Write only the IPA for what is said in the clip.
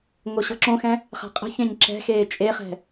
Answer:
ŋoɕɤǁõxɛ̃ | χa̤qʼə̤çẽɲ ǁɛ̤xeː t͡ʃʼeχɛ̤

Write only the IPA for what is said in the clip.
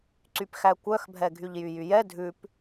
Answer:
ǀypxækʷœxbʱɛ ɡʱyʎjyjyjɛ dʱʉp

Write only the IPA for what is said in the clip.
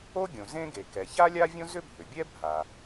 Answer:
o˥ɡʲõ˩ zẽ˥ɡe˩kɛ˩ ça˥lʲa˥vʲõ˥ zʏ˥bʱʏ˩bʲɛ˥ bʱa˩

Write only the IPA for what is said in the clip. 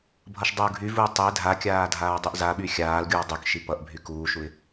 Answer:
bʱʌʃdˤuːɡʱyvuː tˤe dʱakʲaː dʱaːdˤyʔzaɓy xʲaːlɡʲuː dˤykʃi pʌʔbʱy kuːʃuɪ̯

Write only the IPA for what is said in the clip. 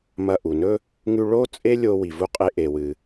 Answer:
mɐ˧ʔu˩nɵ˥ | ŋʉ˧ ɭo˥ t͡sʼe˥lʲo˧ wi˩vu˧qʼe˧ ʔe˩wɨ˩

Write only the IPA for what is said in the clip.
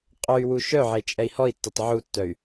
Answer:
qʼœy̯wu ʃœʕe t͡ʃʼɛi̯hɔi̯tːœtˤ ʕutːœy̯

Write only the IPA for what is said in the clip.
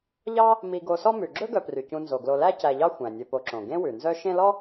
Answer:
ʎɑ˥ | mi˨ɡo˨sɔ˦mʉ˩ ɡ͡ǁɵ˥ɡœ˨pry˩ cũ˨nzo˩ɡlo˨læ˦ cæ˨ʎɑ˥ xʷæ̃˩nʲɵ˨po˨ǁõ˩ ɡẽ˥wʉ˩nzœ˥ ʃẽ˦lɔ˥

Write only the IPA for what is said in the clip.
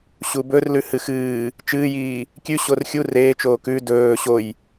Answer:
ɕubɵrlʉhɨ xɨː | t͡ʃɨːjiː | kʲʉ ɕorxʲu reːt͡ʃoː kʉ dɵː ɕoj

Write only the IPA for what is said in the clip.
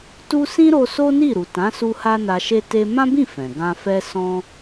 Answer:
tu˦ sĩ˦ɾo˧ so˦ ni˦˨ɾu˨tã˨˦su˧ ha˦na˧ʃe˦ te˦ mã˦bĩ˦˨ fɛ̃˨ɡã˧fɛ˦ sɔ̃˦

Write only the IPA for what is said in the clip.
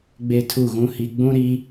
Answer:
ɡ͡be˦tʰu˦˨ɣũ˦hi˦ ɡ͡bũ˦ɾi˦

